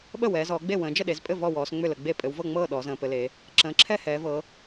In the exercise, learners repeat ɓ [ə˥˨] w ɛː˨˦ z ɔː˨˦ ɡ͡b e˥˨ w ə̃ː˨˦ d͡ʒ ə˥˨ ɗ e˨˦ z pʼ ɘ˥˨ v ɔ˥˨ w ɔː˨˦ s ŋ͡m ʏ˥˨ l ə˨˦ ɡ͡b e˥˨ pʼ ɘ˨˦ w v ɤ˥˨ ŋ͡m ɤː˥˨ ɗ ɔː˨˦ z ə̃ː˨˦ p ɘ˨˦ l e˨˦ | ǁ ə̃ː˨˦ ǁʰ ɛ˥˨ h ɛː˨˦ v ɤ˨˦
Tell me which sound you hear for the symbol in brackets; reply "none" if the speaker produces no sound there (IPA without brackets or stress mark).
ə˥˨